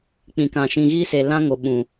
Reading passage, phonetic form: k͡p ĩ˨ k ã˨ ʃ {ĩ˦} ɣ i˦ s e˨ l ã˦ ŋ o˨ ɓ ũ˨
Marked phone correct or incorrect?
incorrect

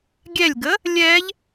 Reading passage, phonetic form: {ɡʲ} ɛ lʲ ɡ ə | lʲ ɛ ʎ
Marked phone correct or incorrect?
correct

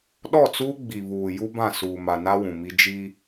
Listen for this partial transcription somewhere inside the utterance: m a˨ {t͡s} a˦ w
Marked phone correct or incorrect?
incorrect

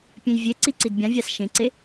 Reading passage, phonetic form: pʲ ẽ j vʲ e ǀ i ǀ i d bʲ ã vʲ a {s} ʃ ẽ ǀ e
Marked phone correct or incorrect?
correct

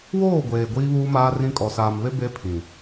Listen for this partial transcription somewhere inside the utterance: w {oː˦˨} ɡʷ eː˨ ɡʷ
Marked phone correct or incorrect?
correct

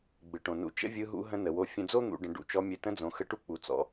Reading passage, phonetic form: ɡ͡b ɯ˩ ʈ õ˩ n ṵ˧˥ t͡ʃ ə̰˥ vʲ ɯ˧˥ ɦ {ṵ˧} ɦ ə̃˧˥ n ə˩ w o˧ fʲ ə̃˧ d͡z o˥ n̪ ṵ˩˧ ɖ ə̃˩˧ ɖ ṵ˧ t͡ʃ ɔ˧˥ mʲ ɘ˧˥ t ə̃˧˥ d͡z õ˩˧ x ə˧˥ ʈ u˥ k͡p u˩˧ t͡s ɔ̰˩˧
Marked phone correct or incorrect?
incorrect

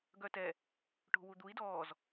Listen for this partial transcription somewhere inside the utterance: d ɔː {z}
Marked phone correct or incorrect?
correct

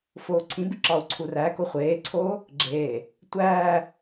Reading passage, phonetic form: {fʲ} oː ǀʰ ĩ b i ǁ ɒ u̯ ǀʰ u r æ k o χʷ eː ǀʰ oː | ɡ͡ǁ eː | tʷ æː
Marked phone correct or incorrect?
incorrect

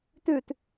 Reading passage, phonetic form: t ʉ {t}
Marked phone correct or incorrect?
correct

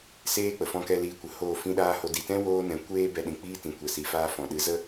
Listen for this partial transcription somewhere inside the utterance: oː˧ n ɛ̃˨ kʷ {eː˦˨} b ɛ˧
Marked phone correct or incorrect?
incorrect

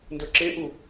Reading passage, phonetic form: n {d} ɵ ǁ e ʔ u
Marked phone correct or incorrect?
correct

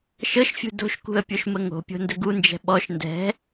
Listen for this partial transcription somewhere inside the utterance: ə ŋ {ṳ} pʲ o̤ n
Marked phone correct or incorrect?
incorrect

